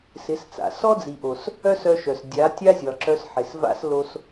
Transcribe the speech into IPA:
s ɪ˨˦ s t͡s a̰˨ s ɔ˦ d͡z i˨ ʔ o˨ s | œ˦ s œ˧ ʃ œ˨ s dʲ a˨˦ tʲ a˦ zʲ ɒ˨ ǁ œ˧ s ħ ɪ˨ s v a̰˦ s l o˦ s

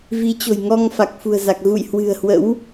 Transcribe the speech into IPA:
v i˨˦ t͡ɕ o̤˨˩ j ŋ ɔ˧ ŋ f a˨˩ k̚ f ṳ˨˩ ə̯ z a˨˩ k̚ ɣ ṵ˧˨ j h w ɨ̤˨˩ ə̯ h w ə̰˧˥ w

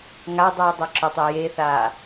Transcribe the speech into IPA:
ŋ a dˤ uː dˤ e ǁ ʊ tˤ e j e θ aː

